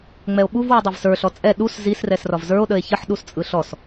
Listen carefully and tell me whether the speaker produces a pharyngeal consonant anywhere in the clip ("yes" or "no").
yes